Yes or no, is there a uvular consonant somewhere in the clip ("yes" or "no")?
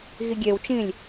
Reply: no